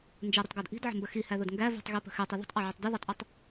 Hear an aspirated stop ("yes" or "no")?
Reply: no